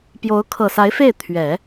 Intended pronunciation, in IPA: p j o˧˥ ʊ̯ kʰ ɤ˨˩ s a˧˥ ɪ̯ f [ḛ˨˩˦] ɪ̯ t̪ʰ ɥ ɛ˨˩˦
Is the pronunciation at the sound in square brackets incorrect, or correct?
incorrect